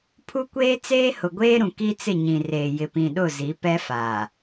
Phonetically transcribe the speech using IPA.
pʰ u˦ kʷ eː˦ t͡s eː˦ h ʊ˨ ɡʷ eː˦ ɾ ũ˨ k i˦ t͡s ɪ˦˨ ɲ ĩ˨ r eː˨ j ɪ˨ p ĩ˨ ɗ ʊ˦˨ z i˨˦ p ɛ˦ f a˨

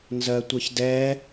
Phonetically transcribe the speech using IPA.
n z ɜ tʷ ʌ ç d ɛ

